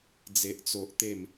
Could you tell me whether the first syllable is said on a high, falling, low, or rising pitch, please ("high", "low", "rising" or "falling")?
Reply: high